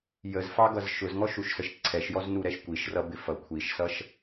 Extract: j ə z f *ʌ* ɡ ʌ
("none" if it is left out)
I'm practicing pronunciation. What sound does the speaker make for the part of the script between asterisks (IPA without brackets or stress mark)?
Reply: ɑ